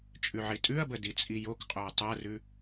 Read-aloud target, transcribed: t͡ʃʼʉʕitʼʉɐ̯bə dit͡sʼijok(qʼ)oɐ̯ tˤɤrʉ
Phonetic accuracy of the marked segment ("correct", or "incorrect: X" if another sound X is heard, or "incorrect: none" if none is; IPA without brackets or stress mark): correct